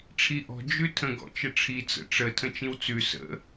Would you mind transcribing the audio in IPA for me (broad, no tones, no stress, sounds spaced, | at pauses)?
ʈ͡ʂʰ i ʔ ɔ̤ d͡ʒ ʉ tʰ ə̃ ɡ ɔ̰ t͡ʃ ə ʈ͡ʂʰ i t͡s ə̰ ʈ͡ʂ ə tʰ ə̃ t͡ʃ ĩ w t͡s ʉ s ə̰